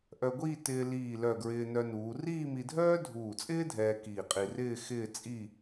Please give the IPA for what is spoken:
ʔœ˧ɡʷiː˥˧ tɪː˧ liː˧˩ lœ˧˩ɡɹɪː˧nœ˧nuː˩˧ riː˥˧mi˧dʱœː˥ dʱuː˧˩t͡sʼɪː˥dʱɛː˧ kiː˧˩qʼi˧rɪː˥˧ xɪː˥˧ t͡sʼi˥˧

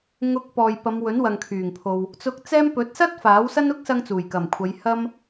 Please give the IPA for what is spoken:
ŋʊ˧k̚pɔː˨jpɐ˨˧m wɵ˨˥nwɐ˨ŋkʰyː˨˩ŋpʰo˨w | t͡sʊ˧k̚t͡sɛː˥m pɵ˨˥t̚sɐ˥t̚ faː˨˥wsɐ˥n ʊ˥k̚sɐ˧ŋt͡suː˨˩jkɐ˨˩m kʷʰɐ˨˧jhɐ˥m

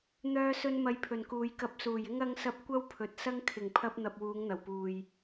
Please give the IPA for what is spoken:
n̪œː˧sɵ˧n mɐ˧jpʰɵ˨nkuː˨j kɐ˧p̚ suː˨˩jɪ˥ŋ ɐ˥ŋsɐ˥p̚ kʷɐ˥wpʰɵ˨˥t̚sɐ˥ŋ kʰɪ˨˩ŋpʰɐ˧p̚n̪ɐ˨p̚ wuː˨˧ŋn̪ɐ˨˩wpuː˨j

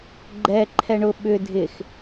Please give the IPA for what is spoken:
ɡ͡ǃɛ ǃʰɛɳʊ ɓʏ dʱɪx

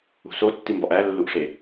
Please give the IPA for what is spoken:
ṳsotːi mbɒʔælːuʔʂe

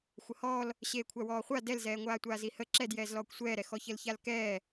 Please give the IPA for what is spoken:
xʷəhɔːl | ɕeːkʷʰawɔːχʷa dɛlzɛːŋʷaːtʷaːz ihə ǁɛd jɛːzlɔːkʷsʷɛːɾɛ xɔçəlçalkɛː

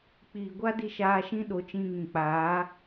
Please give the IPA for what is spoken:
k͡piː˨ɡʷa˦di˧ ʃaː˧ʃĩ˦ɗo˨˦ t͡ʃĩ˧ŋĩ˨k͡paː˨˦

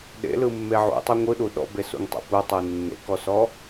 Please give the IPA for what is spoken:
ɗḛlɯmːe ʕṵtˤu ŋʷɯɗu ɗɔ̰besṵŋtˤḛ putˤu nːḛkɔsɔ

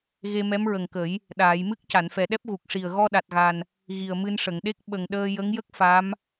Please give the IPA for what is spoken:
ɣe˧mɛ˧˥mɹə˨˩ŋkə˨˩˦j | ɗaː˨˩˨jmɨ˦˥k̚ ca˨˩˨nfɛ˨˩ɗɛ˦˥p̚ ɣu˨˩k̚ʂi˨˩ə̯ ɣɔ˧ɗa˨˩t̚ɣa˨˩n | ɣi˨˩ə̯mɨ˧nʂə˨˩˨ŋɗe˦˥k̚ ɓə˨˩ŋɗəː˧ jə˧˥ŋjə˦˥k̚ fa˧˥m

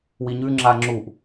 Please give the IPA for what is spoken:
wiɲʉ ŋ͡ǁaŋ͡ǁuʔ

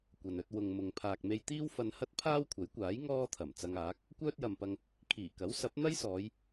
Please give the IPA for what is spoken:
kʷɐ˨nɵ˧t̚ wʊ˨ŋ mʊ˨ŋ pʰaː˨k̚me˧jt̪iː˥w fɐ˧nhɐ˥t̚ pʰaː˥wkʷʰɐ˨˥jkʷaː˨˥j ŋɔː˥t̪ʰɐ˨˩m t͡sɐ˧ŋaː˨˥k̚ | kʷœː˥t̚jɐ˨mpɐ˧ŋ | kʰiː˨˩kɐ˨˥w sɐ˨˥p̚n̪ɐ˥jsɔː˨˧j

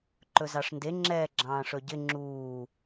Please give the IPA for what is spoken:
ǃɵzɑʂnde ŋ͡ǁɛːɡ͡ǁɑ̃ːʂɵɟɪ ŋ͡ǁuː

